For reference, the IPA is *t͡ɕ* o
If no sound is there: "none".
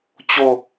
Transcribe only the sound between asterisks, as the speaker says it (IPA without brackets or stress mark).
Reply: t͡ɕ